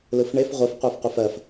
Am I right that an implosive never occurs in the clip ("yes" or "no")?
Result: yes